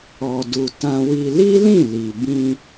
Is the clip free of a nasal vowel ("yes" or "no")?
no